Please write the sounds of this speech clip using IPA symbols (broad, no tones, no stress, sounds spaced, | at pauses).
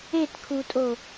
e t kʰ u tʼ o